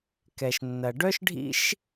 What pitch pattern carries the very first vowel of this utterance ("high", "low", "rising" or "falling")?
low